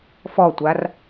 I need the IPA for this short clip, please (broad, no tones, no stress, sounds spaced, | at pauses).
f ɔ tʷ a r